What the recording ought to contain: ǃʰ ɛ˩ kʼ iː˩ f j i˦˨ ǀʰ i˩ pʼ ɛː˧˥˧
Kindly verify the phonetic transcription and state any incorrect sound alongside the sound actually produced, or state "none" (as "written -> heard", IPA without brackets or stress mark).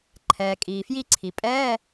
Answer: ɛ˩ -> ɛː˩